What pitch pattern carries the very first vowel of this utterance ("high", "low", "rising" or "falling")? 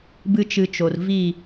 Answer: high